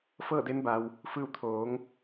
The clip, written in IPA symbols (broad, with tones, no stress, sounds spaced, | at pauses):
f ɤː˥˨ d e˧˥ n b a˩ w | f ɯː˧ w t̪ʰ oː˩˧ ŋ